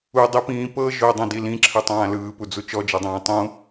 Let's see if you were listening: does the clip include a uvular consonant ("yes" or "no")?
no